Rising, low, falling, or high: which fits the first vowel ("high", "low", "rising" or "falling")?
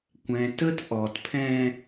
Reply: low